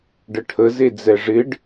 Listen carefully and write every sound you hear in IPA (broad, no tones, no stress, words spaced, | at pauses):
ɖəʈʰə zed͡zɛʐɪɖ